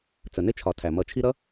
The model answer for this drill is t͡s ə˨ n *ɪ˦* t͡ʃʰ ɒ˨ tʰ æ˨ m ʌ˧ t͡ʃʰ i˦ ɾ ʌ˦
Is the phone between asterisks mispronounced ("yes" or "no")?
no